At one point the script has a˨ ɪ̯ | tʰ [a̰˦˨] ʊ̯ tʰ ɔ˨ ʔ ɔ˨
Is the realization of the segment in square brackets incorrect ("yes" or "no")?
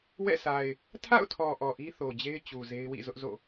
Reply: no